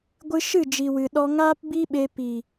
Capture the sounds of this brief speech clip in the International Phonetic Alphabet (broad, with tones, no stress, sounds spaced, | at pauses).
ɡʷ ɨ˧ ʃ ɨ˦˨ d͡ʒ i˨ w ɨ˨ ɗ ɔ˧ ŋ aː˦ p b i˦ ɓ e˧ p i˨